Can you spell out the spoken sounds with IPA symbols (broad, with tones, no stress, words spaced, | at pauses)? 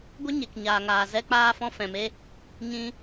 ɡʷə˦ ɲe˨kɲaː˨ŋaː˨ zɛ˧k͡paː˧fɔ̃˧ fɛ̃˨me˧ | ɲĩ˧